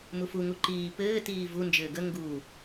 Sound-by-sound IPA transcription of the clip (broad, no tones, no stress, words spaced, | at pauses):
mufu ŋuǃiː pɘː tiːvu nd͡ʒɘːɡə ŋɡu